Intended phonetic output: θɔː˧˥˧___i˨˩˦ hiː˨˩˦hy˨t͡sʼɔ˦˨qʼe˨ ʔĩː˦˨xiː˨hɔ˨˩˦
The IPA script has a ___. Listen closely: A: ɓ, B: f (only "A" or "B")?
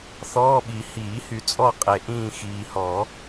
A